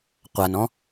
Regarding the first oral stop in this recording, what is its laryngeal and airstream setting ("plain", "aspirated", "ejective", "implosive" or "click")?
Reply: plain